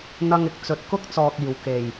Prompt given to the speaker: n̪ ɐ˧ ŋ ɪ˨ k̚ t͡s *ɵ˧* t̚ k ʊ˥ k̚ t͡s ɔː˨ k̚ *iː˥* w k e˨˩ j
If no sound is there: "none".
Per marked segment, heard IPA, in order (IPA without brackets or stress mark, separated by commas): ɵ˨˥, iː˨˩